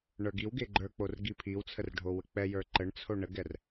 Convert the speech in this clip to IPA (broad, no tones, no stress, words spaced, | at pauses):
ɳə˞ɡiwɡe ɡ͡ǃə˞k͡por ɡipʰiwt͡sʰər ɖʱowək͡pɛjə˞ ǃəɳt͡sʰo ɳəɡɛr